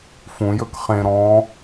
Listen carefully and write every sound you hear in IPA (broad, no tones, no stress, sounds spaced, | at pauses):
f ũ j ɵ k χ ẽ ɾ ɔ̃